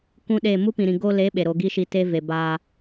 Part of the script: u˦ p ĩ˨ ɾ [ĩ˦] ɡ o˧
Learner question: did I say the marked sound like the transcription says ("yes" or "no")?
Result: no